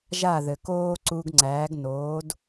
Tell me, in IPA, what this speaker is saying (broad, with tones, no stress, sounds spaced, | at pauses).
ʒ a˥˩ ð ɘ˩ k oː˥ ǀ u˧ ɡ ŋ͡ǀ æː˩˥ ɡ n oː˩˥ d